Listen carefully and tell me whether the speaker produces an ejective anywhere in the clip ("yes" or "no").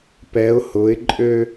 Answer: yes